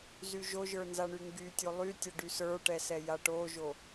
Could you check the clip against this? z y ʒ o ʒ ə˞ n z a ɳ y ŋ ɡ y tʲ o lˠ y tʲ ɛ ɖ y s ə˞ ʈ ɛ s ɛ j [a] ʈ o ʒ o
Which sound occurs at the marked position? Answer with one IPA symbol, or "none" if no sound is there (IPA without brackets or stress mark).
a